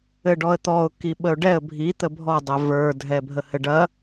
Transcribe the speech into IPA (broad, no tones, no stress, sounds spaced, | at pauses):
ɘ ɖ ɔ ə̯ t̪ ɔ ʊ̯ k i ɓ ə ʊ̯ ɖ ɛ ə̯ bʱ i t̪ ə bʱ ɔ dˤ ɛ v ə˞ dʱ ɛ bʱ ə h ɘ ɖ ɐ